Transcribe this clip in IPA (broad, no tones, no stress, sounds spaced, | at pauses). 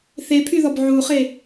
θ e pʰ y ð ɔ b ʕ u χ e